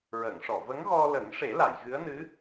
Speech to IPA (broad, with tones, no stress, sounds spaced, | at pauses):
ɹ əː˨˩˨ ŋ ʂ ɔ˨˩˨ v ə˧˥ ŋ ɣ ɔ˧ l ə˨˩˦ ŋ ʂ e˨˩˦ l a˨˩˨ j ɣ ɨ˧˥ ə̯ n ɨ˧˥